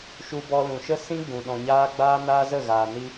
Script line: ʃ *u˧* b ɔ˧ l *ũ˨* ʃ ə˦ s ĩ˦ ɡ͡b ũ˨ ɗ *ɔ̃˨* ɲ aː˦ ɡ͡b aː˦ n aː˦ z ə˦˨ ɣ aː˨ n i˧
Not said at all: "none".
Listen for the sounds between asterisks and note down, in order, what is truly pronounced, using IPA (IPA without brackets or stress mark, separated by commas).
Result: u˧, ũ˨, ɔ̃˨